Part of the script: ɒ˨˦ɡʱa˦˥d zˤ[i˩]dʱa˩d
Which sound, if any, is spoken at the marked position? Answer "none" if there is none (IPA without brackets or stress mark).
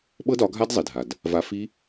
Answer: i˩